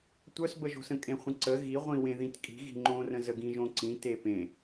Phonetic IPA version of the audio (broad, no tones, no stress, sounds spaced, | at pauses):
tʷ œ s b ə ʒ o̤ s ə̃ kʼ ẽ χʷ ə̃ ǀ ə ɣ i ʁʷ ĩ w ẽ ð ĩ t kʼ i̤ ɣ i̤ ŋ͡ǃ õ r ə̃ z ə ɡ ĩ ʒ õ ǀ ĩ t e p ẽ